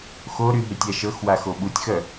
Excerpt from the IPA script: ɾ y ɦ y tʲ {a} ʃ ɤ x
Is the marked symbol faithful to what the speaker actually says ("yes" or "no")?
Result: yes